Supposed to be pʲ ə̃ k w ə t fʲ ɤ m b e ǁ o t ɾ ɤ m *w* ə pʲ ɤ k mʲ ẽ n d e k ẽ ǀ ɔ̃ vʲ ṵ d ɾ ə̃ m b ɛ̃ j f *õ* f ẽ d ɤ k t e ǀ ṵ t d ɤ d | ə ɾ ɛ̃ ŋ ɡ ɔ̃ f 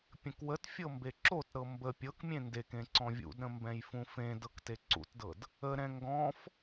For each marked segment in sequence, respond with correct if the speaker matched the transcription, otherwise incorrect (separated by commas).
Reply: incorrect, incorrect